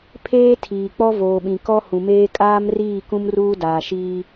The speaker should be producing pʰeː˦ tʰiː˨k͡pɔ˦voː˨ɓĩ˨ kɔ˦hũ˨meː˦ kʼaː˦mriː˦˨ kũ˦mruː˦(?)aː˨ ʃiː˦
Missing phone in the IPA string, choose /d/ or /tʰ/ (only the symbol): d